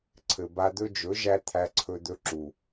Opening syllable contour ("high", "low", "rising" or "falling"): low